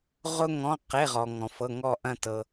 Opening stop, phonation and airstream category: plain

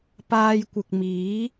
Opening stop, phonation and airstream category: plain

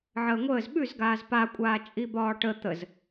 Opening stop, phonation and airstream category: implosive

